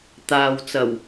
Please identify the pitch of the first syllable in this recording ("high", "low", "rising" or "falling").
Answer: low